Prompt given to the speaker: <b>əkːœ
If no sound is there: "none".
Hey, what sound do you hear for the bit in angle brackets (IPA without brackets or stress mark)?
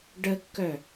ɖ